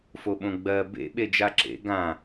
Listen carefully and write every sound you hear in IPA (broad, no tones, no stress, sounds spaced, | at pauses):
f o ɓ õ ɡ͡b ɜ b ḛ ɓ e d͡ʒ a ǁ ḛ ɡ ã